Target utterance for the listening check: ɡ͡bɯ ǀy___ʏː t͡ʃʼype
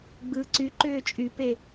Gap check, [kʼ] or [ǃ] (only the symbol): ǃ